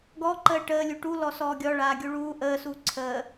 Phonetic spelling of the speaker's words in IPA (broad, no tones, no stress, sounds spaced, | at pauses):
ɡ ɔ ǃ əː ʈ əː lʲ u ʈ u l ɔ s ɔː ɡʲ ɔ ɭ aː ɡʲ u ɭ uː ʔ əː s uː ǀʰ əː